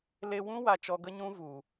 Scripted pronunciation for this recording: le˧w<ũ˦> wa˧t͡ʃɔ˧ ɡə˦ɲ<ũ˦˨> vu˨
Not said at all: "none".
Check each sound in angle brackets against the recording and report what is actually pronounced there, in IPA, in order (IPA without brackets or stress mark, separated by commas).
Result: ũ˦, ũ˦